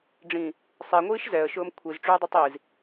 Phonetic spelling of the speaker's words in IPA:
ɖ͡ʐ ĩ | sˤ e ŋʷ iː ʃ z ɛ ə̯ ʃ ʊː m kʷʰ i z ʈ͡ʂ ʉː dˤ ʉ tˤ i z

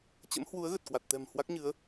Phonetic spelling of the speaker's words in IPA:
t͡ɕ ə̰˧˥ m h w u˨˦ ə̯ ɣ ə˨˩ t̚ k w a˨˩ t̚ t̪ ɛ̤˨˩ m h w a˦˥ k̚ ɲ ɨ˨˦ ə̯

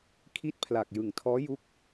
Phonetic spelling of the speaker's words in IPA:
kʰ i˥˩ t̚ pʰ l a˨˩ k̚ j ɯ˨˩ ŋ tʰ ɔː˦˥ j u˦˥ k̚

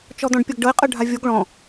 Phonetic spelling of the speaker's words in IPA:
t͡ʃ ɔ d̪ ɔ̃ ɖ pʲ ɤ ɡ ɖ ɤ e̯ qʼ ɤ ɖʱ a vʲ o ɡ ɭ ɔ̃

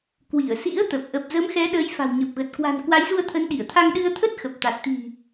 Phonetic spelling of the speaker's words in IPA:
k w i˧˩ ə̯ s ḭ˧˥ ə̯ t̪ ə˨˩ p̚ ʔ ə˨˩ p̚ z ə˨˦ m x ɛ˨˦ ɗ əː˨˦ j f a̤˨˩ w ɲ ə˨˩ p̚ ɣ ə˨˩ t̚ k w a̤˨˩ n k w a˨˦ j z u˧ ə̯ t̪ʰ ə˨˦ n ɗ i˧˩ ə̯ t̪ʰ a˧ ŋ ɗ ɨ˧ ə̯ t̪ʰ ə˦˥ t̚ x ə˨˩ p̚ t̪ a˨˩ t̚ t̪ i̤˨˩

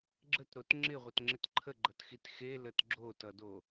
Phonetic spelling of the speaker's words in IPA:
ɡ͡ǁ ə t ɾ o t ŋ͡ǁ ɪ ʁʷ ʌ t ŋ͡ǁ ɪ t ǃʰ ə ɡ͡ǃ ʌ t x i t x e l ə t ɡ͡ǁ o t ʌ d o

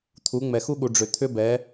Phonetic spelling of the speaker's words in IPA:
t̪ʰ u˨˦ ŋ͡m ɛ˨ x u˦ ɠ u˨ ɖ͡ʐ ʏ˨ t̪ʰ ʏ˦ b ɛ˨˦

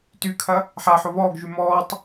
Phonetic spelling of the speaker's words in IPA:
t y kʰ ɐ | ħ a ħ o β ɔː ɡ ʒ y m ɔː tˤ

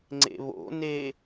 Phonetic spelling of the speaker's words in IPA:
ŋ͡ǀ ḛ β o̰ n e

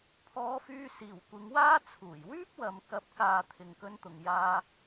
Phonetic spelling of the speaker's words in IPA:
pʰ ɔː˧ f yː˧ s iː˨˩ w kʷ ɪ˨˧ ŋ w aː˥ t͡sʰ uː˨˩ j w yː˥ p̚ w ɐ˨ m k ɐ˨˥ p̚ k aː˨ t̪ʰ ɪ˨ ŋ k ɵ˧ n t̪ ʊ˨ ŋ j aː˧

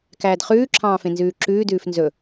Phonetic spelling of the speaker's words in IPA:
k æː d χ ʉː ǁʰ ɑ̃ː f ẽ n z ʉː ǁ ʉː d ʉː f n z ɵ

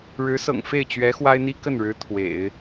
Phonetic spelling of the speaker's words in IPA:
ɻ ɻ̩˧˥ s ɤ̰˨˩ ŋ f e˥˩ ɪ̯ t͡ɕ ɥ ɛ˧˥ x w a˥ ɪ̯ n̪ i˥ k ə˥˩ n ɻ ɻ̩˧˥ t̪ʰ w ḛ˨˩˦ ɪ̯

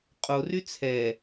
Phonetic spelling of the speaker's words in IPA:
qʼ o r y t͡sʰ ɛ

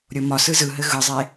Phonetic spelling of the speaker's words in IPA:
ɾʲ o m ɒ s ɯ z ɯ ɦ ɘ ɣ ɯ zˤ e

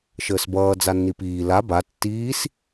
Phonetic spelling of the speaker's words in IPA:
ʃ əː s b ʌː d͡z a nː i p iː l a b a tː iː s

